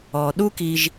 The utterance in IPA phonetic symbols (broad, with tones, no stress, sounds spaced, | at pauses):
ɔ˩ ɗ u˥ k i˧ ʒ